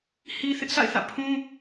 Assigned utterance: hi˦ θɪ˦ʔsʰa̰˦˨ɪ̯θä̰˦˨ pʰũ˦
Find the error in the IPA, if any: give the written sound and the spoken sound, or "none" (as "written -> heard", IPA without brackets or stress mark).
none